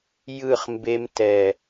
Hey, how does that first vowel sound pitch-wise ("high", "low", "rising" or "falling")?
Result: falling